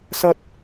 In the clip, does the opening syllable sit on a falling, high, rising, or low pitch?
high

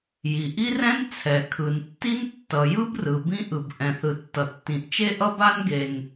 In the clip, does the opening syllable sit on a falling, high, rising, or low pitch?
low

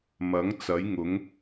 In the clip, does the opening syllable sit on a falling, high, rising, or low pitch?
rising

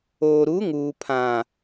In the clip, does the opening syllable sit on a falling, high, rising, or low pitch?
low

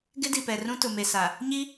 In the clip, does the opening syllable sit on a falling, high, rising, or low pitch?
high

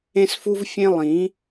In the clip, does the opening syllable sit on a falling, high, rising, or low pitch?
high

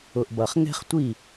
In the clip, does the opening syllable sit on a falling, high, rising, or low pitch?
low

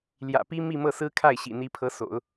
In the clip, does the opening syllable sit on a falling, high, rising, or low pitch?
low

